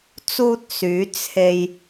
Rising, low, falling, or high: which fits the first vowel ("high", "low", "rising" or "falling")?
high